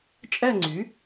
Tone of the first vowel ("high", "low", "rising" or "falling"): falling